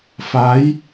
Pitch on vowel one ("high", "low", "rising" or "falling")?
rising